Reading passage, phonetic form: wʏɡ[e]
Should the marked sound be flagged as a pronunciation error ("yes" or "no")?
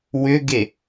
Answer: no